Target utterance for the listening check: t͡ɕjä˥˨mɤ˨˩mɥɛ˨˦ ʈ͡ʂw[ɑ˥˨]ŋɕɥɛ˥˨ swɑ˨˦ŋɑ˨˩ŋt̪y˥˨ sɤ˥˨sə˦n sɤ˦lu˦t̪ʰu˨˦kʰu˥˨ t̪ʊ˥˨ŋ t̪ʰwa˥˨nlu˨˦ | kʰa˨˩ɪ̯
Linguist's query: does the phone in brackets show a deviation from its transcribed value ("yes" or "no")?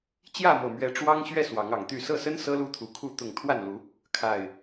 yes